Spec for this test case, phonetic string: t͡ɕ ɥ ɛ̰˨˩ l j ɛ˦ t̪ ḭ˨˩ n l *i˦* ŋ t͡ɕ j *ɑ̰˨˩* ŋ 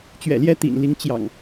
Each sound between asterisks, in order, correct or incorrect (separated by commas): incorrect, correct